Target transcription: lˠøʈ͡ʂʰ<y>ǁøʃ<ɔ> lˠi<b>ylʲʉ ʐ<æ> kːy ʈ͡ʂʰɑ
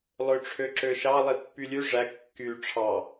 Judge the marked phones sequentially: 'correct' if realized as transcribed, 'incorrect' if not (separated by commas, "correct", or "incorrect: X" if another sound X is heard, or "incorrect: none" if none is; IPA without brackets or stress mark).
incorrect: ø, incorrect: ɑ, incorrect: pː, correct